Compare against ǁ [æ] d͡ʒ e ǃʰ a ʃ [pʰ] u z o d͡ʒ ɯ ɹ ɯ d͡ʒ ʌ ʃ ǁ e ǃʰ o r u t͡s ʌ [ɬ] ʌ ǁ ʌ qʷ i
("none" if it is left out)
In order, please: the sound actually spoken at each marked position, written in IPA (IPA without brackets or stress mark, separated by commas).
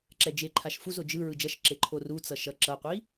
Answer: ɛ, f, ʃ